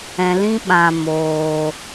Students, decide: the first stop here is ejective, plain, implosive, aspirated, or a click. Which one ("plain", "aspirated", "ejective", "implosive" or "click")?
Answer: implosive